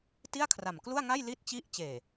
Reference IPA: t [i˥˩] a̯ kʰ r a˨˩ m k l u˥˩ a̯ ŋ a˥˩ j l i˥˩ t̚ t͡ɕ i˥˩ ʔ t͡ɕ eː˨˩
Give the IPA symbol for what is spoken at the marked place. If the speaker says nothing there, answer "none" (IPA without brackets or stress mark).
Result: i˥˩